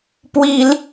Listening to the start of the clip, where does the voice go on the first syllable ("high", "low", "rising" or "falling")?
high